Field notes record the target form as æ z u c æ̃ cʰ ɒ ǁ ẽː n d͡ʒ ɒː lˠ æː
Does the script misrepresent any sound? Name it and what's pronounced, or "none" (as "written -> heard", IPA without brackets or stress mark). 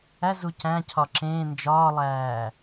none